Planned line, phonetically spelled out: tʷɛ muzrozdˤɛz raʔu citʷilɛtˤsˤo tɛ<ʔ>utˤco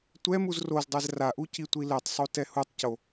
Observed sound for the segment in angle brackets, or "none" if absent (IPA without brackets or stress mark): h